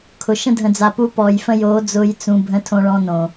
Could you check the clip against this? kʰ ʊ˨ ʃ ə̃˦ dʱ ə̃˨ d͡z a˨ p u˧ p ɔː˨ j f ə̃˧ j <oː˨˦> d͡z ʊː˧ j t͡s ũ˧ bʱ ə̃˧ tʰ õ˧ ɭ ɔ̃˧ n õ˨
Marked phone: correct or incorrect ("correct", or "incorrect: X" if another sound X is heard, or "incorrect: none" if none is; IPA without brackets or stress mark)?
correct